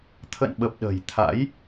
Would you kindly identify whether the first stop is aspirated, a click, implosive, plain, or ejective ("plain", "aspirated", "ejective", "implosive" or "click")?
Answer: aspirated